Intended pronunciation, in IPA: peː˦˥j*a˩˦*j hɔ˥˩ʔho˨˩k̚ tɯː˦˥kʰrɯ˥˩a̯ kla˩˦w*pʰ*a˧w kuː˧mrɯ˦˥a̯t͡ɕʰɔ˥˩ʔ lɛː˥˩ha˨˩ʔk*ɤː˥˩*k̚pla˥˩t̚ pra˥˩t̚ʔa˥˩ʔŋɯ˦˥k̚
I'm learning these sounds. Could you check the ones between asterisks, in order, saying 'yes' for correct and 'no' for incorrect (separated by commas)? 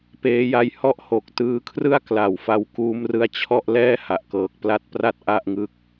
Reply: no, no, no